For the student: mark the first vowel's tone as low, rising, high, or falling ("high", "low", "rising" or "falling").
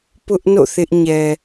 high